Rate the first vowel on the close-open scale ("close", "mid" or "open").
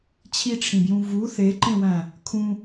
close